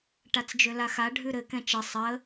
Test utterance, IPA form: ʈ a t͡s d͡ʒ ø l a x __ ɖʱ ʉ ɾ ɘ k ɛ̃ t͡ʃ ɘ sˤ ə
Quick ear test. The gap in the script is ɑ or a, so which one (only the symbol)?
a